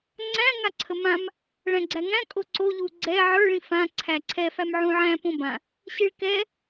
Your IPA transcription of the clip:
ŋ͡ǀæ̃ ŋaǀʰəmãm | ɭæ̃ɡ͡ǀæŋæ̃ kʼoǀo ʎuɡ͡ǀɛ ʕə˞ ɭĩfã ǀʰæǀʰɛ fæmʕũʕæ̃ põbã | ɕiɭkɛ

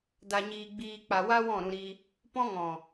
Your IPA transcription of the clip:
da˧ɲiː˧ɡ͡biː˧k͡pa˧ wa˦wɔ̃˦˨ɾũ˧ɾi˧ | pɔ̃˧ŋɔ̃˨

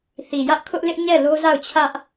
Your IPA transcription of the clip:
θi˨jä˦ʔkʰʊ˦ʔ lɪ˦ʔ ɲɛ˦˨lo˦za˦˨ʊ̯t͡ɕʰä˦ʔ

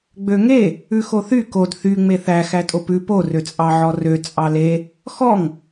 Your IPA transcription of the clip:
ɡ͡bøŋe | ʉxoθy kod θy ŋ͡meθæ xætʼopʉ po røt͡sʼɑʕɔrø t͡sʼɑle | xɔŋ

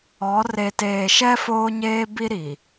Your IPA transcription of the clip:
ɔ˨˦ re˨teː˨ʃɛ˦ foː˦ɲeː˦bi˦ ɾi˨

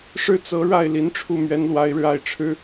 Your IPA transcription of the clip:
ʂɻ̩˥˩t͡sɤ˧˥ɻa˥˩ɪ̯ li˧˥nʈ͡ʂʰu˥˩ mɥɛ˧˥nlwa˧˥ɪ̯ɻɻ̩˧a˥˩ɪ̯ ʈ͡ʂʰɻ̩˥

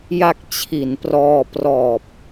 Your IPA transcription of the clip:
ja˦˥k̚ t͡ɕʰi˩˦nprɔː˧ prɔː˨˩p̚

